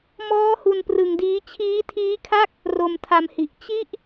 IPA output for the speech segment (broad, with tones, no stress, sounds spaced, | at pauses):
m ɔː˦˥ h u˧ n p r ɯ˧ ŋ d iː˦˥ t͡ɕʰ iː˦˥ tʰ iː˦˥ kʰ a˥˩ k̚ | r o˧ m tʰ a˧ m h i˨˩ ʔ t͡ɕ i˦˥ ʔ